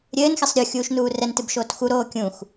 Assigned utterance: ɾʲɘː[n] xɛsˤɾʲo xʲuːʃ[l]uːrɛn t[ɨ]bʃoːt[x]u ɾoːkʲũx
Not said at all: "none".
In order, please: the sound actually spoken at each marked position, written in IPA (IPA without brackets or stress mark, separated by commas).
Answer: n, n, ɨ, x